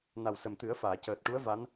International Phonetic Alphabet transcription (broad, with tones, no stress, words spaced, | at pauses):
na˨˩wsə˨˩mt̪ɨ˨˩˦ə̯ faː˨˩˨cəː˨˩t̚ʈu˧˥ə̯ va˧˥n